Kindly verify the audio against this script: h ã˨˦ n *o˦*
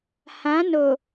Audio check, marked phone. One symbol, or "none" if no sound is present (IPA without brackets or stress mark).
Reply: o˨